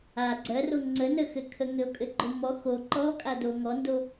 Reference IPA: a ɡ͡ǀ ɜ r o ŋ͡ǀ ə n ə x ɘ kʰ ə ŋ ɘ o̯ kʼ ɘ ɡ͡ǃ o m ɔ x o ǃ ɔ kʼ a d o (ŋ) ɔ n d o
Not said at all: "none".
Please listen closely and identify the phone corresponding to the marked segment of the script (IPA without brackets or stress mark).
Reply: ŋ